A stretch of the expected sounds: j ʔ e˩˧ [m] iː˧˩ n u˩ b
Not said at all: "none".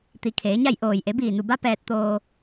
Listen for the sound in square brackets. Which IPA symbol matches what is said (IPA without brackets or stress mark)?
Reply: b